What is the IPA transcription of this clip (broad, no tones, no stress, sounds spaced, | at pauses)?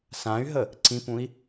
s ã y̯ ɦ ə | ǀ ĩ p ũ i̯